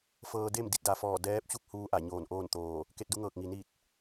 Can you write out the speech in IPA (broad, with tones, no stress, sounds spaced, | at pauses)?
f ɤː˧ d e˥˨ m d i˧ t̚ d a˩ f ɔː˧˩ d ɛː˧˥ p̚ t͡ɕ u˥˨ k̚ h uː˧ ʔ a˧˩ ɲ oː˧˩ n ʔ oː˥˨ n t̪ oː˧˩ | k e˥˨ t̚ d u˧˥ ŋ ɤː˧˩ k̚ ŋ i˩ n i˧˩ t̚